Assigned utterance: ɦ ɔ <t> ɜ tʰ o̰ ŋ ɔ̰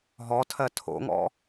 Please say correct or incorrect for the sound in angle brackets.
incorrect: tʰ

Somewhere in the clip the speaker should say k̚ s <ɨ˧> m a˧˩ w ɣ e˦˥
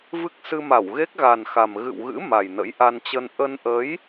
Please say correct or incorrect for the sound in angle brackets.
correct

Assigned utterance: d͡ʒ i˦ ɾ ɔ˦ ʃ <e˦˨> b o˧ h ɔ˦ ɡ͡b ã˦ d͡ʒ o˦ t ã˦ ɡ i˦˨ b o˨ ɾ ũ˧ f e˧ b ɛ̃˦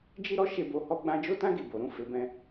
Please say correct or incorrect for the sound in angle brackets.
correct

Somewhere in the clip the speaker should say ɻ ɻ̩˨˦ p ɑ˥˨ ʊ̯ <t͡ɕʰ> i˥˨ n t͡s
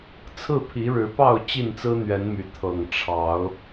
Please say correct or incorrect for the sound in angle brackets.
incorrect: t͡ɕ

